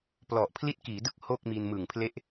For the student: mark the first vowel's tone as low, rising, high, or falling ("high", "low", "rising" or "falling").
low